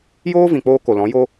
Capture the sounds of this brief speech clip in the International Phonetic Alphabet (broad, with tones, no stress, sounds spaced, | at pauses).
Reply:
j oː˦ v ĩ˨ k͡p oː˧ k o˨ l ɔ̃˨˦ j o˦